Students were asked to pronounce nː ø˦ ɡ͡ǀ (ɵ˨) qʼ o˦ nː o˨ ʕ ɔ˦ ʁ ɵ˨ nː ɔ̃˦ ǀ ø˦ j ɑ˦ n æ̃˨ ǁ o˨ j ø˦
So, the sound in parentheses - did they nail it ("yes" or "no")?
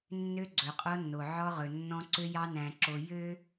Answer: yes